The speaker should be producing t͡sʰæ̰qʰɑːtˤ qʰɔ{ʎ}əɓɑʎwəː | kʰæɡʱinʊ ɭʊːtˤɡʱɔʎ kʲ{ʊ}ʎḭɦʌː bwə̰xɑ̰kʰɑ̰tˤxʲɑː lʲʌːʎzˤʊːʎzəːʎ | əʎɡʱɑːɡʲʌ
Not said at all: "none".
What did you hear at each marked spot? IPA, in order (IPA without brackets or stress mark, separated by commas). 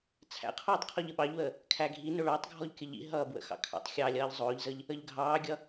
ʎ, ə